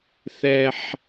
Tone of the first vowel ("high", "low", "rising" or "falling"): low